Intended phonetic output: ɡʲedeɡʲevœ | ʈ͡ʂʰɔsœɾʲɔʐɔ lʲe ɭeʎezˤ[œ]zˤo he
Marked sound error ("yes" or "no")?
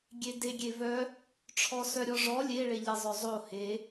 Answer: no